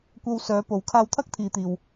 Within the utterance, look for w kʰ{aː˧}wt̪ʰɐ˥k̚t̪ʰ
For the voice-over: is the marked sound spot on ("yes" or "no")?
yes